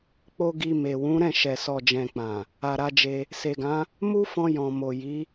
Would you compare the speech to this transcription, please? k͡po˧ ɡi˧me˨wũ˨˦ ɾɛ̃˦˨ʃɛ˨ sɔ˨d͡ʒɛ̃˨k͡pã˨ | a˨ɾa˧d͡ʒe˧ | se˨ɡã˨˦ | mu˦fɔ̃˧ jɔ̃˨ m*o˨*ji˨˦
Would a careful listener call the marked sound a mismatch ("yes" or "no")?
no